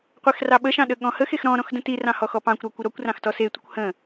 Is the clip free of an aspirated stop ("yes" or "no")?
yes